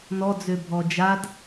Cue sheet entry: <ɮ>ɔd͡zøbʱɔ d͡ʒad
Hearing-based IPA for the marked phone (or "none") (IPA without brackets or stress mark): n